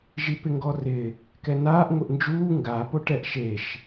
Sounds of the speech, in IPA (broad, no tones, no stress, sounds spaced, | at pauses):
ʒ i p ɪ ŋ ɡ ɔ r ɪ | k ɛ n aː ʔ ŋʷ ɪ ʔ n d͡ʒ uː ŋ ɡ a p o ʈ ɛ ʔ ʃ e ʃ